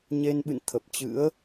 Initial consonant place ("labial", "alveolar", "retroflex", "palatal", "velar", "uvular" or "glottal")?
palatal